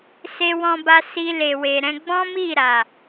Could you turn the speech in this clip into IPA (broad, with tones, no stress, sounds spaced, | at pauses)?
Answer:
s e˧ w ɔ̃˧ b a˧ s i˧ l e˨ w e˨ ɾ ɛ̃˧ ɡ͡b ɔ̃˦ m i˦˨ ɾ a˨